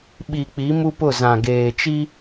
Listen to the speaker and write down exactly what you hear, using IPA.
ɓ i˨ k͡p i˨˦ m u˦ p ʊ˦˨ z ã˨ ɡ eː˨ t͡ʃ i˦

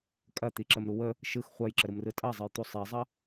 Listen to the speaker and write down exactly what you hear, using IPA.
kʼ ɐ t̪ i ǁ ə m ɾ u w ə | ʃ ɯ x χʷ a j ǁ ə ɾ ɯ m r ɯ tʼ ɐ zˤ ɯ j t̪ u sˤ i zˤ ɐ

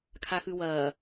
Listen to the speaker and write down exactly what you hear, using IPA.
kʰ a x ʉ w ɐː

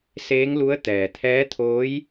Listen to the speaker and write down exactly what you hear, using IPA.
s eː˧˥ ŋ l u˧˥ ə̯ t̪ ɛː˩ t̪ʰ ɛː˧˥ t̪ʰ oː˧˥ j

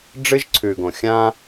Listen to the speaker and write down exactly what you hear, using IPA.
ɖ͡ʐ ɨ˦ ʒ ǀʰ ʉ˨ ɡ õ˨ xʲ ã˧

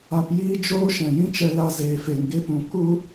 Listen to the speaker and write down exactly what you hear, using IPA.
a˧ p j iː˦ d͡ʒ oː˦ ʃ ɛ̃˨ j ĩ˦ t͡ʃ ɛ˧ l a˧ z eː˨ f e˨ n ɡ e˧ p ũ˨ k u˦

